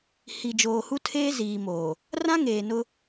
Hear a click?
no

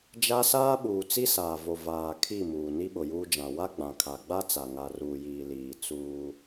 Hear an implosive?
yes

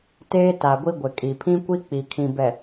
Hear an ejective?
yes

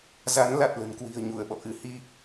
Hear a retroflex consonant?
no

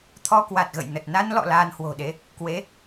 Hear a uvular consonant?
no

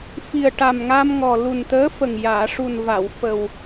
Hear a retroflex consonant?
yes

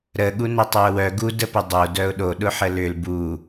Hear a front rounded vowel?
yes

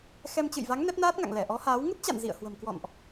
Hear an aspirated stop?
no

